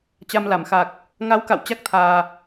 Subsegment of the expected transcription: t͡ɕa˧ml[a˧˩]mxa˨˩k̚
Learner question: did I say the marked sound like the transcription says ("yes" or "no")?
yes